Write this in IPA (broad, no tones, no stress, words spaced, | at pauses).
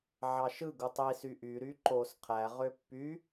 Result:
ʕɑʃɯɡu tˤisy ʔyɾy ǃos qʰæʁø pːy